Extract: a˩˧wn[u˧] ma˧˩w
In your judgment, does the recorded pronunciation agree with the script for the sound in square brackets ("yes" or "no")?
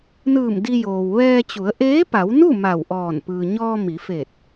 no